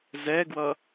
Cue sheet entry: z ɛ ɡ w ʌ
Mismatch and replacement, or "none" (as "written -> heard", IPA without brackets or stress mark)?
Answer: none